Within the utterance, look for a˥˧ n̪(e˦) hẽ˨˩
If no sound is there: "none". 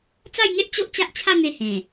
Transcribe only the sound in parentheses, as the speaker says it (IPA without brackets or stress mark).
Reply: e˧